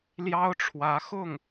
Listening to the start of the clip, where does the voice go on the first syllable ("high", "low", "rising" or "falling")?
high